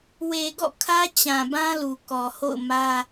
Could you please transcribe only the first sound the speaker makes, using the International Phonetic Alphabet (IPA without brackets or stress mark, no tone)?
w